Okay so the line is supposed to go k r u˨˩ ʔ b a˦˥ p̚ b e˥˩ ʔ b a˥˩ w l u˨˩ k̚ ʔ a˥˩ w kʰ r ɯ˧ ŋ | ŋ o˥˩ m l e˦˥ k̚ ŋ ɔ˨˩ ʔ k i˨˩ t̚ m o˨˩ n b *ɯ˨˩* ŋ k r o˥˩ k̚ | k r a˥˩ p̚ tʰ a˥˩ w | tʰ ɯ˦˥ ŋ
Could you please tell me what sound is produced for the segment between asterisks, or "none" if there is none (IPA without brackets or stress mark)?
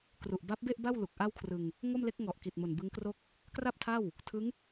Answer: ɯ˦˥